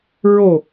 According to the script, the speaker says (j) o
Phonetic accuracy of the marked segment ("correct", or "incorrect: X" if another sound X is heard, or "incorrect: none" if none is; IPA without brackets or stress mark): incorrect: ɹ